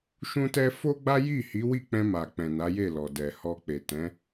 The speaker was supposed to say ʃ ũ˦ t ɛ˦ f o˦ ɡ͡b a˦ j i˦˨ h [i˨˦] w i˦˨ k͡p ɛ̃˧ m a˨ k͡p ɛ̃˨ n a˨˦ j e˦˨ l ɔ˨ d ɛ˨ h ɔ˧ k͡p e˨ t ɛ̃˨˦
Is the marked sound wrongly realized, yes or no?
no